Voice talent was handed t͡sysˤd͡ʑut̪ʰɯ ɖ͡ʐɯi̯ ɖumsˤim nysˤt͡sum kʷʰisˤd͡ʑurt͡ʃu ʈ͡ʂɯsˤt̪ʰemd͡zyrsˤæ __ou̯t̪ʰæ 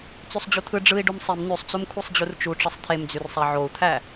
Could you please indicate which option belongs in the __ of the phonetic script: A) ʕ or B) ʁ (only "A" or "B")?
A